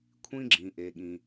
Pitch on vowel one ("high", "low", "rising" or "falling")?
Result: high